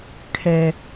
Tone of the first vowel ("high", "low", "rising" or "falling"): low